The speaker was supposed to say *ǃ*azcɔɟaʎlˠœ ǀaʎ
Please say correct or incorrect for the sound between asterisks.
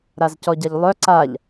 incorrect